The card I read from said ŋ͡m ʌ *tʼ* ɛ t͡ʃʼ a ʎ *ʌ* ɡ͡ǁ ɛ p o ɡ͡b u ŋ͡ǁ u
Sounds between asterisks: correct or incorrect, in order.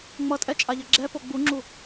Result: correct, correct

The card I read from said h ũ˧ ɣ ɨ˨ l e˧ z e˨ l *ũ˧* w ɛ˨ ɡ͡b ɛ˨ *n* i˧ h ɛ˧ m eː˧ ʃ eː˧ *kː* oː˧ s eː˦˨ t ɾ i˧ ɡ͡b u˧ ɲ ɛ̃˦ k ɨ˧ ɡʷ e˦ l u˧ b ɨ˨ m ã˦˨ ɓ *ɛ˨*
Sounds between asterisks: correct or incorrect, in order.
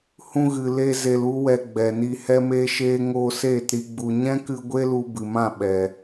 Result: incorrect: u˧, correct, incorrect: ŋ, correct

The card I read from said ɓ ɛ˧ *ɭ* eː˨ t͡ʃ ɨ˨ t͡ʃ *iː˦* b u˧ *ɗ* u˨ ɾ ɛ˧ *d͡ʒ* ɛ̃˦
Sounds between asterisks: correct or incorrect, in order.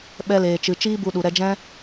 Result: incorrect: l, correct, correct, correct

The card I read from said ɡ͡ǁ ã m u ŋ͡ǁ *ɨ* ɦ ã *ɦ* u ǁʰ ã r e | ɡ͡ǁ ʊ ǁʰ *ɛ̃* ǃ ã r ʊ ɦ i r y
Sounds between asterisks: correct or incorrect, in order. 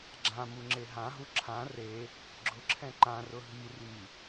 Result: incorrect: e, correct, correct

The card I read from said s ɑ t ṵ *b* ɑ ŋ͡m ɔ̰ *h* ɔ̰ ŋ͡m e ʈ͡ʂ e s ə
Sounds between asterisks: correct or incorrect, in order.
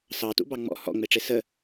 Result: correct, correct

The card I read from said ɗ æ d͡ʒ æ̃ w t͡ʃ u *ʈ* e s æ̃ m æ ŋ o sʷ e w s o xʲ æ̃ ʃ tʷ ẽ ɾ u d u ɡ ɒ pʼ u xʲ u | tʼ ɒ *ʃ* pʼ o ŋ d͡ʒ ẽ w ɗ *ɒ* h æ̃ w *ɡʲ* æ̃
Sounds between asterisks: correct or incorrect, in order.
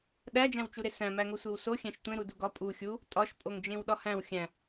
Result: incorrect: ɾ, correct, correct, incorrect: xʲ

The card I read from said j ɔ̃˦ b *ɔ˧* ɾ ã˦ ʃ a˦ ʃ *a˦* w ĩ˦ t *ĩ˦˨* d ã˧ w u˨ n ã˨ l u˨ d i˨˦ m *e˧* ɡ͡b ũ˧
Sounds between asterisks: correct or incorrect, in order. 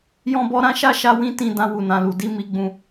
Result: incorrect: ɔ˦, correct, correct, incorrect: i˧

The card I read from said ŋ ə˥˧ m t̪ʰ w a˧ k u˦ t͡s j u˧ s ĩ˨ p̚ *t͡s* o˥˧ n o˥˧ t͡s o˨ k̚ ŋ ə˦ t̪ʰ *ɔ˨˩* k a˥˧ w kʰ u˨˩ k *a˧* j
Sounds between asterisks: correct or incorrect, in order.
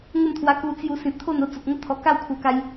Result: incorrect: t̪ʰ, correct, correct

